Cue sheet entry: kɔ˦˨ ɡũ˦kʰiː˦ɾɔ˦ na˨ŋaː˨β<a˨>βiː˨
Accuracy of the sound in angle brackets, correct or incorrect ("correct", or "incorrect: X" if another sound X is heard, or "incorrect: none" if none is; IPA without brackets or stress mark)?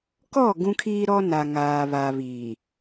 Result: correct